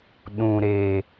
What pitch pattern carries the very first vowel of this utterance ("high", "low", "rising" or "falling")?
low